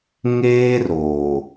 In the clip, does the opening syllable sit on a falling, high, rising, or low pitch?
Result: high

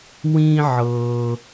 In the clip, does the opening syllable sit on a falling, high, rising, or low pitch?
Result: high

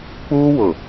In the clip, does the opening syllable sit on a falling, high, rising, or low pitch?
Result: high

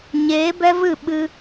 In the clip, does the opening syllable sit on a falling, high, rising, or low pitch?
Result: rising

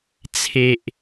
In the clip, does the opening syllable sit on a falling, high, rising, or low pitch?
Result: low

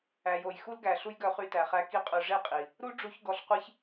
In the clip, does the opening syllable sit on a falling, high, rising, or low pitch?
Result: low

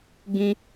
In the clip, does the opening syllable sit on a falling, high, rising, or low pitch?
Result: high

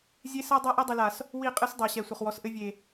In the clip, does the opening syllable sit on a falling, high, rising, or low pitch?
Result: high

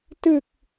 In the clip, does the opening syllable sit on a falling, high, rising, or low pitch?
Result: low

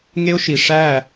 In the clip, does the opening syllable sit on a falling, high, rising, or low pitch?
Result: high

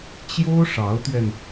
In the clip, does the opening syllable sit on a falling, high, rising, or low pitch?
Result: high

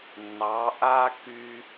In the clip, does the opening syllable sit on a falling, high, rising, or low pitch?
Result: rising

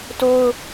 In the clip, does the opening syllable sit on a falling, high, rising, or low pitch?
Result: high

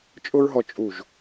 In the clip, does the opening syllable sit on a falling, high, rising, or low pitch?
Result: high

